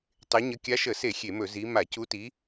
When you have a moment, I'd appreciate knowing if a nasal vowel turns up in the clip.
no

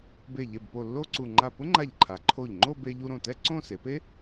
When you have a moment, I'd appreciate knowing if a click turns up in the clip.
yes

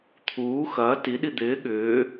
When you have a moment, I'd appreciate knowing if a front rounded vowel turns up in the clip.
yes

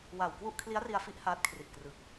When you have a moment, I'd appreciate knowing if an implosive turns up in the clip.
no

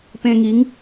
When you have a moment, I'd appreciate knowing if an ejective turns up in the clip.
no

